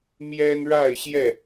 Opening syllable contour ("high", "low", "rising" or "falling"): high